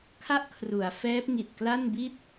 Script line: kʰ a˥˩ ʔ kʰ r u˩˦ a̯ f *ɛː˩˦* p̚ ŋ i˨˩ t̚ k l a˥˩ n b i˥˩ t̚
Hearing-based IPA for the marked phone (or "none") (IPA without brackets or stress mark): ɛː˦˥